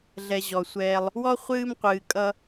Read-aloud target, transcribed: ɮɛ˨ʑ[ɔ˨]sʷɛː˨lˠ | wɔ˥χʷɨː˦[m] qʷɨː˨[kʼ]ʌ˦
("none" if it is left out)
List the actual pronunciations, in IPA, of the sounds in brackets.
ɔ˩, m, kʼ

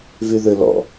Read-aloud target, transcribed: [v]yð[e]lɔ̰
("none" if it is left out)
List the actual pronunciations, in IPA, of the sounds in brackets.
v, ø

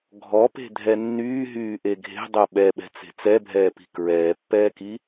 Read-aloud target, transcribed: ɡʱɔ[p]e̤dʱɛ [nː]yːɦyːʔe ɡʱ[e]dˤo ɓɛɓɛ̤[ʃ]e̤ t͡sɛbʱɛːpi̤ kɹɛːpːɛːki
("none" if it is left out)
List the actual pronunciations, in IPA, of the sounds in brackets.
p, nː, e̤, t͡s

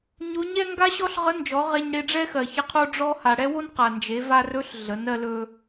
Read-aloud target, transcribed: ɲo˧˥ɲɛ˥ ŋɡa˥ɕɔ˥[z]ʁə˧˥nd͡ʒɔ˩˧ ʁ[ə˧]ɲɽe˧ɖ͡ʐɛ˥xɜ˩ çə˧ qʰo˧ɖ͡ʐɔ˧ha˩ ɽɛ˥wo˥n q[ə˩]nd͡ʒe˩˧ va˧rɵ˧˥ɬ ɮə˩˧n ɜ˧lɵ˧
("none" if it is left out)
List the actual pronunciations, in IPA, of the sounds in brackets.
ɬ, ɛ˧, a˩

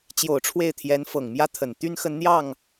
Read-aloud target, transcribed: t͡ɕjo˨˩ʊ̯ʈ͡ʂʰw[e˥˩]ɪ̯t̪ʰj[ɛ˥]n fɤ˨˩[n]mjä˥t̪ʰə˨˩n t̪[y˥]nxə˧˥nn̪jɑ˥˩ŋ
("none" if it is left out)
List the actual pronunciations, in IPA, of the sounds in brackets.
e˥˩, ɛ˧˥, ŋ, y˥

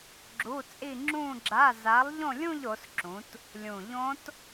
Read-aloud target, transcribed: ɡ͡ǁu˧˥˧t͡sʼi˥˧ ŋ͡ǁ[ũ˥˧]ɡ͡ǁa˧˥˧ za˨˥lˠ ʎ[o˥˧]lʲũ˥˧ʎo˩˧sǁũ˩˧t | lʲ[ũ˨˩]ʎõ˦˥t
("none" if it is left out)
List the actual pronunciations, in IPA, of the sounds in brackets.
ũ˥˧, õ˥˧, ũ˨˩

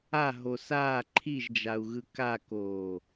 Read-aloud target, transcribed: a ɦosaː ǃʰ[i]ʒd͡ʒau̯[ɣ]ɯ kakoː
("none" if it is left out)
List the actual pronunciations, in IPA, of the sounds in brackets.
i, ɣ

